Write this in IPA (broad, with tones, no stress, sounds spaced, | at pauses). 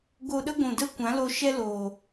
ɡ o˧ ɗ ə˦ ɡʷ ũ˨ d ə˦ kʷ ã˨˦ l o˧ ʃ ɛ˦ l oː˨